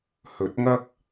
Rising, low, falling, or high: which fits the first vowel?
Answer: rising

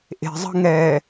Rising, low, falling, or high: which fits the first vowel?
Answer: low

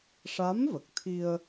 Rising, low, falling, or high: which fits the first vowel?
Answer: rising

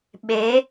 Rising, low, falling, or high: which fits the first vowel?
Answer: rising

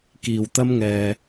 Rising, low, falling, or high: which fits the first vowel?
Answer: low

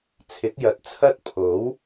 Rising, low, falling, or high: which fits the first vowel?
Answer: rising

